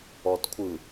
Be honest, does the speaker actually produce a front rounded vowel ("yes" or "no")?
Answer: no